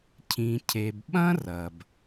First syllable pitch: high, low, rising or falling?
low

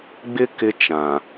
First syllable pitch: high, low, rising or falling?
high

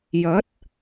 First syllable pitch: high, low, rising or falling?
rising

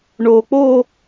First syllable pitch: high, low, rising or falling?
low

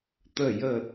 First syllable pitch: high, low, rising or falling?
falling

